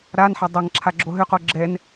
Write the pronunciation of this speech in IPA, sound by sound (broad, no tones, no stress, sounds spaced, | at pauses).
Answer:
ɾ a n ħ a dˤ ɐ ŋ ǁʰ a ɡ͡ǁ o ɦ ʏ q o ɡ͡ǁ ɛ n